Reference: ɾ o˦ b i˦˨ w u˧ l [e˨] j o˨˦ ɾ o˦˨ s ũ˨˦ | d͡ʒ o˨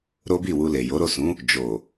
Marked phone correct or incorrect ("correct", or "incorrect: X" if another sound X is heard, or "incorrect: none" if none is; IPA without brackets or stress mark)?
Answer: correct